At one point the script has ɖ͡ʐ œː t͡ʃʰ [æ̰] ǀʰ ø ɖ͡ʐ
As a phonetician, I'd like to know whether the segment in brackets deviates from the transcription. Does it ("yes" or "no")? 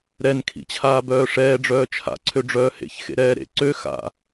yes